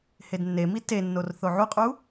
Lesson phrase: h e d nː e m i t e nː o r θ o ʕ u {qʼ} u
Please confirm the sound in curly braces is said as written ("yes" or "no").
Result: yes